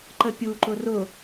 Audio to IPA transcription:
ǃəpʲuǃʊ rʊ

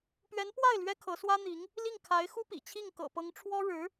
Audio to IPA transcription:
pɥɛ˧˥npwa˥˩ɪ̯ lɥɛ˥kʰɤ˧˥swä˥n̪i˧˥ŋ | li˥˩ŋkʰa˧˥ɪ̯xu˥pḭ˨˩ t͡ɕʰi˥˩ŋkɤ̰˨˩pɤ˧˥ŋʈ͡ʂʰwɔ˥ ɻɻ̩˧˥

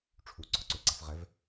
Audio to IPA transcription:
ʈ͡ʂʰuɡ͡ǀɔǀøɡ͡ǀaf ʁɛv

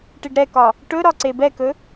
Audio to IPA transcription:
ʈiɖɾɛkɒ | ʈɵ ɾɒǀebɛkɵ

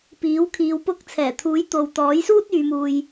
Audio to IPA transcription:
piː˨˥wkʰiː˧wpʊ˥k̚ t͡sʰɛː˨˩t̪ʰuː˨˥jt̪o˨w t̪ɔː˨˥jsuː˥t̚ yː˨˧muː˧j

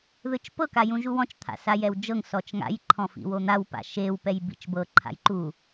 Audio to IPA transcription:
ðɯt͡ʃpɤ kajũʒuwɔ̃t͡ʃ t̪ʰa̰sajɛwd͡ʒɤŋ sɔt͡ʃŋa̰j ǃʰɔ̃fḭwon̪aw pa̰ʃew pɛjbḭt͡ʃbɤ ǃʰa̰jǃu

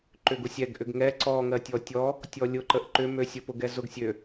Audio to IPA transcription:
ǃʏɡʊsʲɛɡ ʔʏɡŋɛ ǀɔŋɜ tʲɔtʲɔ | tʲɔlʲʊǃəʔ ǃʏmøsʲəpʊɡ ɛzʊɡsʲø

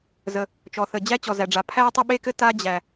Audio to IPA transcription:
zə˩ | t͡ʃɔ˩θə˩ d͡ʑæ˥t͡ɕɔ˩zæ˩ɖ͡ʐa˩ pʰæ˥tˤɘ˥ɓe˥kɘ˥ ta˥d͡ʑæ˩

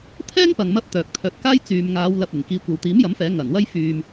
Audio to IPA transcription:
t̪ʰɛː˥ŋpɐ˨ŋ mɐ˥p̚t̪œː˨k̚ t̪ʰœː˨˥t̚kaː˥j t͡syː˨mŋaː˨˧w lɐ˧p̚ɪ˨˩ŋ kiː˨˧kʷɐ˨wt̪iː˨˥mjɐ˨˥m fɛː˨˥ŋɐ˨˩nwɐ˥j fyː˨m

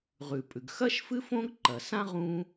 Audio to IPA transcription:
ʁʉ˩pʼʉ˩ɡ xɐ˥ʃfɨ˥ fõ˥ɡǃɐ˩sã˥ ʁũ˥

